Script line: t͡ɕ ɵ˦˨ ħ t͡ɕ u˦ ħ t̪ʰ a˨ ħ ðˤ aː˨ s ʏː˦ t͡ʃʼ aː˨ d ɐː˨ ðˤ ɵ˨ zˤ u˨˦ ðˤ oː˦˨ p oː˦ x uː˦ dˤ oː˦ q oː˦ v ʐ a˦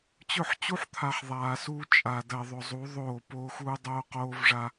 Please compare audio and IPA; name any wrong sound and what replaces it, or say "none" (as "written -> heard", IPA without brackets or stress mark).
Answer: ʏː˦ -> uː˦